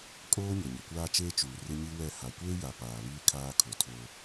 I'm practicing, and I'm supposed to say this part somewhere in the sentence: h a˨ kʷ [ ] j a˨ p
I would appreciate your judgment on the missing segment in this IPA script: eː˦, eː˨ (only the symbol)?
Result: eː˦